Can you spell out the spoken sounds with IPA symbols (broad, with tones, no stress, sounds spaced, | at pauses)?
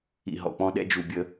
ḭ˨ ɦ ɔ̰˨ k͡p ɔ̃˦ ɗ ɛ̰˦ d͡ʒ u˨ bʲ ə˦